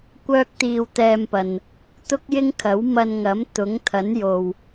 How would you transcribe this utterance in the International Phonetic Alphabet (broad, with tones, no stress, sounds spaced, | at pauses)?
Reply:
kʷ œː˥ k̚ t̪ iː˧ w t̪ ɛː˧ m p ɐ˨ n | t̪ ʊ˥ k̚ j ɪ˥ ŋ kʰ ɐ˨˥ w m ɐ˧ n ŋ ɐ˨˥ m t̪ ʊ˨˥ ŋ t̪ʰ ɐ˨˥ n j o˨ w